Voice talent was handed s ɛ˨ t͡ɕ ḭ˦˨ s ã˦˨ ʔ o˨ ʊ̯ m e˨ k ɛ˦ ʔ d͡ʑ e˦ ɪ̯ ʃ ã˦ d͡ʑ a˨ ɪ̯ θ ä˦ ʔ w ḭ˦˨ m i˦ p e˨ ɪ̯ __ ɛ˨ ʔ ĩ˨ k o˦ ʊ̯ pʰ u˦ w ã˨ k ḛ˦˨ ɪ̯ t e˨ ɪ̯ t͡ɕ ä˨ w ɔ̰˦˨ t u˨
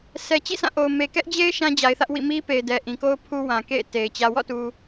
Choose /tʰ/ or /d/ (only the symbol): d